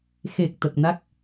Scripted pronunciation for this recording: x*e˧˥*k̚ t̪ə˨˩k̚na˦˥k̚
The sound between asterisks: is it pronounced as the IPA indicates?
no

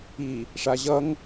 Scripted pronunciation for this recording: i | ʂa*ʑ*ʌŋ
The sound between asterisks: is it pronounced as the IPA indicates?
yes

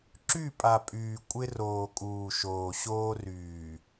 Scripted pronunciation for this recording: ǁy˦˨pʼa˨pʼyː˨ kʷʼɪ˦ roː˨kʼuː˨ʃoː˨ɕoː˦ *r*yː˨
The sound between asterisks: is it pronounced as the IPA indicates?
yes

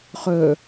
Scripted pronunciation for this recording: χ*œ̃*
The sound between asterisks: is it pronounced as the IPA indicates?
no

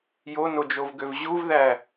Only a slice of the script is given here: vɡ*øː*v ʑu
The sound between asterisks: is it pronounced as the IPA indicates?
no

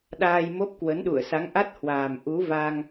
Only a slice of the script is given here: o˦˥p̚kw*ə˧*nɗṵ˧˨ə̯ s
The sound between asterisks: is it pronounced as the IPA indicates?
no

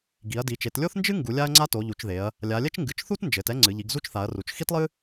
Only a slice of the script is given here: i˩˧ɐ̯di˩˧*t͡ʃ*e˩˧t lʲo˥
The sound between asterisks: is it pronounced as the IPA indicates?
yes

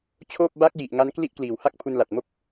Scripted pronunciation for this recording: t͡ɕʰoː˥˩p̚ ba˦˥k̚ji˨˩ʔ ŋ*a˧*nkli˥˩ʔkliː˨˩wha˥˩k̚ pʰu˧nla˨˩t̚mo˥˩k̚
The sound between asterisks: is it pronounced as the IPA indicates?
no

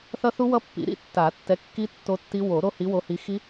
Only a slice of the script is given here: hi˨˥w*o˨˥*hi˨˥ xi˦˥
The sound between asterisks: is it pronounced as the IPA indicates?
yes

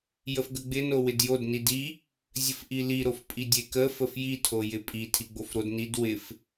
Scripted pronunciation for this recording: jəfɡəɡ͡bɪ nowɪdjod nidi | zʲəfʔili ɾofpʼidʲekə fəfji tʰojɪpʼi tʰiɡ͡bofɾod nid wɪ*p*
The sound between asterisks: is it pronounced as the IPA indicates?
no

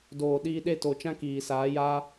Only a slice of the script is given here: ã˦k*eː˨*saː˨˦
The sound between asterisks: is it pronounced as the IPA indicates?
no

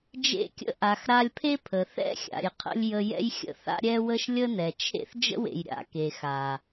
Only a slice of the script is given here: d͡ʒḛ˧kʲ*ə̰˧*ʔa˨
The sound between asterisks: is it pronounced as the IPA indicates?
yes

